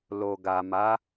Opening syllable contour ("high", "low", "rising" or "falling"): low